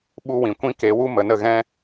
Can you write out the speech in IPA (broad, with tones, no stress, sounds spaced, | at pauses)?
ɓ u˦ w ĩ˨ kʷ ĩ˦ k e˨˦ w u˦ m ə˨ n ə˦˨ ɣ ɛ̃˦